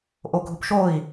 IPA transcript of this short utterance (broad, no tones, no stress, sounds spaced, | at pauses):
ʔ o ɡʱ ʊ p ʃ o i̯